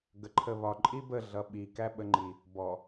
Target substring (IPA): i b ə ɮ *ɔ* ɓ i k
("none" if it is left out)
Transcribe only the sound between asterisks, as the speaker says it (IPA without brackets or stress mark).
ʌ